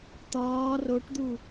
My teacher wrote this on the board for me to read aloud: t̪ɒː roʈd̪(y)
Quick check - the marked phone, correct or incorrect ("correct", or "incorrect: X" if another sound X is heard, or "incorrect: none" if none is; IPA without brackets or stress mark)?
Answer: incorrect: u